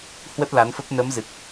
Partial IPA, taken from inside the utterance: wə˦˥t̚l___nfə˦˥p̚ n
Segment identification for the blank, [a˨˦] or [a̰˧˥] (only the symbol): a˨˦